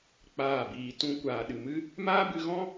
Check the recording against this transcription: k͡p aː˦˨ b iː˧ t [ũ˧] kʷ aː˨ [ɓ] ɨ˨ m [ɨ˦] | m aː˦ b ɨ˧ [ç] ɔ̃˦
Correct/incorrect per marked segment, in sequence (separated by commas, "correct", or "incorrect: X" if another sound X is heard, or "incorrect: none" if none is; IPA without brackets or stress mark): correct, incorrect: ɗ, correct, incorrect: ɣ